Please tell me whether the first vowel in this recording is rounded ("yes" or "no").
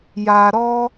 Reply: no